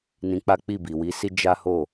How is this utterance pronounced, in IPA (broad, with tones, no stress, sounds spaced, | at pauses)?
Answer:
n ĩ˧ k͡p a˦ k͡p i˦˨ b i˨ w i˨˦ s i˦ d͡ʒ a˦ h o˦˨